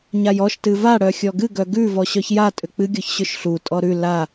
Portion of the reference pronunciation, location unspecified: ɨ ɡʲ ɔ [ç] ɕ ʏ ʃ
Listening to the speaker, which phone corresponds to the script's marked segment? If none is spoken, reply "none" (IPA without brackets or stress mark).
ç